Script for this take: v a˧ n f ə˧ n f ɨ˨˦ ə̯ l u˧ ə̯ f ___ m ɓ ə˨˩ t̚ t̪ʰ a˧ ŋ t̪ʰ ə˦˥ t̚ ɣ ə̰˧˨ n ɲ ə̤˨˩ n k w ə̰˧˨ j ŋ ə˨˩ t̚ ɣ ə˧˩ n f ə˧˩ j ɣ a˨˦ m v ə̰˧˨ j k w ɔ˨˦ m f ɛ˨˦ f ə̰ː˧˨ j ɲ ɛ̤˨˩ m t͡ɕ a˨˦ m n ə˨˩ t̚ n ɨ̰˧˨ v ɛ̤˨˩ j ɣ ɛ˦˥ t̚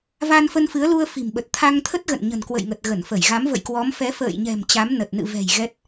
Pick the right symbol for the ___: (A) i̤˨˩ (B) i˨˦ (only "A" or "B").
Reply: A